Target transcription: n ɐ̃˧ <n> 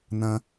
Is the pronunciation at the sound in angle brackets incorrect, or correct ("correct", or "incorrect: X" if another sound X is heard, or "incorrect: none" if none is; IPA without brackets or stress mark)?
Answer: incorrect: none